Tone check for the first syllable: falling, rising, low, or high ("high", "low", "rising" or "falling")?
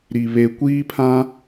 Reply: low